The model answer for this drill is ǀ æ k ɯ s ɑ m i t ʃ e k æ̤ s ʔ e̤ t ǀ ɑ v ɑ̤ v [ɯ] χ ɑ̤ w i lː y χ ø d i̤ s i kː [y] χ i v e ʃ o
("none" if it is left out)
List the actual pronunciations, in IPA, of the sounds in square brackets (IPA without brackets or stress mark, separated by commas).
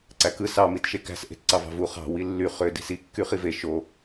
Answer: u, y